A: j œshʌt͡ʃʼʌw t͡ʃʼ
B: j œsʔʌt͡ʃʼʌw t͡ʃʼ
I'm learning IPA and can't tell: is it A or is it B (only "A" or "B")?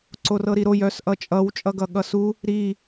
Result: B